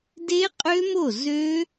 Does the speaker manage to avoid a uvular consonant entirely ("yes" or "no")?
no